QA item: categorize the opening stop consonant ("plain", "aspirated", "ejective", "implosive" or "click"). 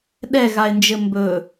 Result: implosive